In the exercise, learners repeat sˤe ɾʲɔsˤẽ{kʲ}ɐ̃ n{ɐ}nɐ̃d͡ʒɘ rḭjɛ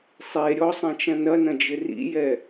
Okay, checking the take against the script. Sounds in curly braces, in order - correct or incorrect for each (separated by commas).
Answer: incorrect, correct